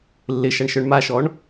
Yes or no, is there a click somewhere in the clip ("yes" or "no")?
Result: no